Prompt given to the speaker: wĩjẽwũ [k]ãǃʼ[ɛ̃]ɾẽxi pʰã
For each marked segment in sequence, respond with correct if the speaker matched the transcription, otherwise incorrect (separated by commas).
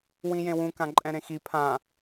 correct, correct